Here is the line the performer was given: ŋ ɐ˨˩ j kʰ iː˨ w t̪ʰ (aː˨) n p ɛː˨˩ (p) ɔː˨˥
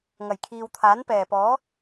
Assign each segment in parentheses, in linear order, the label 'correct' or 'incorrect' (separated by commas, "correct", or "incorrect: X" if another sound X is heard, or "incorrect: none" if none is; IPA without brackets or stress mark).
incorrect: aː˨˥, correct